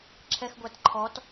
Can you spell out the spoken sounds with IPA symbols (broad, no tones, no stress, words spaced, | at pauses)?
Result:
ǁʰɛxɡʷætǃʰɔt